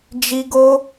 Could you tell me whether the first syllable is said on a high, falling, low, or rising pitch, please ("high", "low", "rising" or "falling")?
high